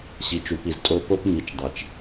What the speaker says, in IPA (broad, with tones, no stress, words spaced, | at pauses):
ɕi˨t͡ʃu˨pi˨ztʼo˧ po˧p mi˨t͡ʃ dˤe˨t͡ʃ